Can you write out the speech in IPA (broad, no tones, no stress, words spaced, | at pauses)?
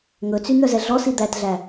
ŋɵt͡sy n̪œzɛɮɔsi d̪ætɮæ